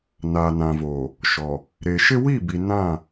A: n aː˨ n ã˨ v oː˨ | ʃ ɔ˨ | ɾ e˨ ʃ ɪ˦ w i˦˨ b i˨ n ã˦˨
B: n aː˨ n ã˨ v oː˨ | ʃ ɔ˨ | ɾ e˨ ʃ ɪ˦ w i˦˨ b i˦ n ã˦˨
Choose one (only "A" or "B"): A